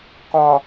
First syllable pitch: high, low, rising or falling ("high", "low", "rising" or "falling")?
low